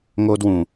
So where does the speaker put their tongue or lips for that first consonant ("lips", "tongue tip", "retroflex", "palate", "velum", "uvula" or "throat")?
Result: velum